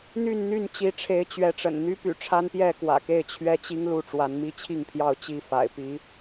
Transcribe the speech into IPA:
n̪ y˥˨ n n̪ y˥˨ n t͡ɕ i˨˦ ʈ͡ʂʰ e˨˦ ɪ̯ t͡ɕ ɥ ɛ˨˦ ʈ͡ʂ ə̰˨˩ n n̪ y˦ p y̰˨˩ ʈ͡ʂʰ a˦ n p j ɛ˥˨ k w ä̰˨˩ k e˥˨ ɪ̯ t͡ɕʰ ɥ ɛ˦ t͡ɕ i˦ ŋ l u˥˨ ʈ͡ʂ w a˨˦ n m i˦ t͡ɕʰ i˥˨ ŋ pʰ j ɑ˥˨ ʊ̯ t͡ɕ i˥˨ f a̰˨˩ ɪ̯ p i˨˦

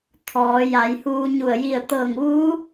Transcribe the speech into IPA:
t̪ʰ ɔː˩˧ j a˩˧ j h uː˧ ɲ u˧˩ ə̯ j i˧˩ ə̯ t̪ ɤː˧˩ ŋ ʋ uː˧˥

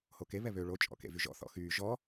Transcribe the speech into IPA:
h o k e β ɛ β ø ɭ o t͡ʃʼ ɔ̰ k ḛ v y ʒ ɔ̰ θ ɔ̰ x yː ʒ ɔ

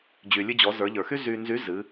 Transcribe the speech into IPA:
d͡ʑ y˩ lʲ ɨ˧ d͡ʑ ɔ˩˧ z ə˞˩˧ ʎ ə˞˩ x y˥ z y˧ n z y˧˥ z ɨ˩˧

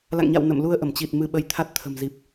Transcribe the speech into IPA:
l a̰˧˨ ŋ ɲ a̰˧˨ w n ə̰˧˨ m l u˧ ə̯ ʔ ə˧˩ m t͡ɕ i˨˩ t̚ m ɨ˧ ɓ ə˧ j t̪ʰ a˦˥ t̚ t̪ʰ ə̤˨˩ m z i˨˩ p̚

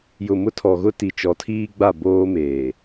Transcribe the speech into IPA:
j ʊ˨ m ʊ˦ tʰ ɔ˨ ɣ ʊ˦ t i˨ t͡ʃ ɔ˨˦ tʰ iː˦ ɡ͡b a˦˨ b oː˦ m eː˨

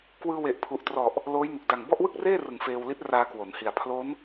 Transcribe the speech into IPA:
k w ɯː˧ w e˨˩ ʔ pʰ u˨˩ ʔ t r ɔ˨˩ ʔ | l oː˦˥ j n u˨˩ k̚ d a˨˩ ŋ b ɔ˥˩ ʔ w ɯ˥˩ k̚ r eː˥˩ r ɯ˨˩ ŋ f eː˧ w l i˦˥ t̚ r aː˧ k w o˩˦ n h i˨˩ a̯ pʰ l o˦˥ n

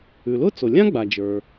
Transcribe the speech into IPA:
ʉ˩ l ʊ˥ t͡s o˩ lʲ ã˥ ɡ͡b a˩ d͡ʒ ə˞˩

